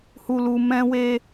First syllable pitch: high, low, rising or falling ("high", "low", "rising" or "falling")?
low